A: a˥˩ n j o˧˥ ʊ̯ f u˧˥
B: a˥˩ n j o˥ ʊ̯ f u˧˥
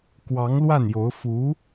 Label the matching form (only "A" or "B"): A